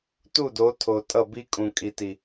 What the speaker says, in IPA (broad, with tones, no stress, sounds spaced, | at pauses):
t u˦˨ d o˨˦ tʰ o˨ tʼ ʌ˦˨ b i˦ kʼ ũ˨ kʼ i˨ t i˨